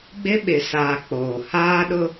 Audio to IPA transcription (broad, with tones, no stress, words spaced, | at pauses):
ɡ͡bɪ˦ɓɪ˨saː˨ k͡poː˨ haː˦ɗʊ˦